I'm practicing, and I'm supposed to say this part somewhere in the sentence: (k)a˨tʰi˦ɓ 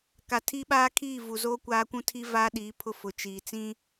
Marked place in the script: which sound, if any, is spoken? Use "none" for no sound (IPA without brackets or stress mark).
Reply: k